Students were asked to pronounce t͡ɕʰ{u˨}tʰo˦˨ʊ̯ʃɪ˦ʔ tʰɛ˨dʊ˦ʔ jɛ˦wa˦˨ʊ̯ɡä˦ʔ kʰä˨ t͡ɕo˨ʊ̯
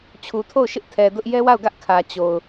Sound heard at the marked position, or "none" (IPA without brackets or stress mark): u˨